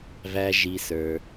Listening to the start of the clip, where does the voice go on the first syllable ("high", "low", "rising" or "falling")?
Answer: high